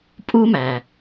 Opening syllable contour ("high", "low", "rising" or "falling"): high